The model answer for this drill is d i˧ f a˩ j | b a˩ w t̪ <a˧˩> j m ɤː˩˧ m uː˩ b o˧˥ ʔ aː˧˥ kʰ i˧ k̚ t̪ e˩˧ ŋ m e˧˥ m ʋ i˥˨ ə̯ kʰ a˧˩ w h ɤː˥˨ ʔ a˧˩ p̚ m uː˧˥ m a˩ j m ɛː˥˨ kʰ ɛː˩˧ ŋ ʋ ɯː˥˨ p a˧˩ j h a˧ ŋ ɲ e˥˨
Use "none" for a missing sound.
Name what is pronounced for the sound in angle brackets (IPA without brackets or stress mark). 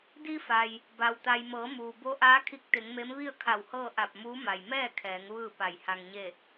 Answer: a˩